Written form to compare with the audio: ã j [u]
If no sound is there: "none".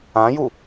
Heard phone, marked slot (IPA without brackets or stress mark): u